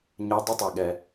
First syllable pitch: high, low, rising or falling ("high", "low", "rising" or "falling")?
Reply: rising